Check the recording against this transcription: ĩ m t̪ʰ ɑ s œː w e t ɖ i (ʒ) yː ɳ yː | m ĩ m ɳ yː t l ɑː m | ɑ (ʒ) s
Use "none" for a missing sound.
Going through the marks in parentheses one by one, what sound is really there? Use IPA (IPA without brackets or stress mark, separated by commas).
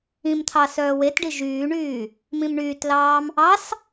ʒ, none